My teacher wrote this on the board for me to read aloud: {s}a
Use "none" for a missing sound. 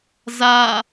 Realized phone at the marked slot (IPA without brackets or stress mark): z